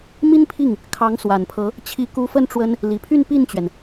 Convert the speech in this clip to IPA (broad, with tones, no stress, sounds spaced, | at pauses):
m i˥ n pʰ i˥˩ ŋ | kʰ ɑ˧˥ ŋ s w a˨˩ n pʰ ɤ˧˥ | t͡ɕʰ i˧˥ k u˧˥ f ə˥˩ n ʈ͡ʂ w ə˥ n | l i˨˩ pʰ y˥˧ n p i˥˩ n t͡ɕ ɥ ɛ˩ n